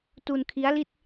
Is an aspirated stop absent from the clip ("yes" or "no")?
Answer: no